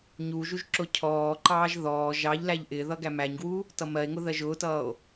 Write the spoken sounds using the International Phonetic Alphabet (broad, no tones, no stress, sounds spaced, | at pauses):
ɲ u ʒ u ʒ ǁ ʊ cʰ ɔː ǃ ɑː ʒ ð ɔː ʒ ɑ ʎ l æ ʎ ʔ ɪ ð ʌ ɡ æ m æ ɲ ɡ w u | t ʌ m ɜ e̯ ŋ ʊ ð ɜ ʒ ʊː t ʌː o̯